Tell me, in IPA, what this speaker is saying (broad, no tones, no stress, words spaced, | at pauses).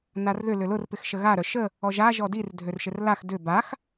narðʏ lʏlʊr pɪxʃəɣa ɾœʃə | ɔʒa ʒɔdir dʱørʃɪrlax dʏ bax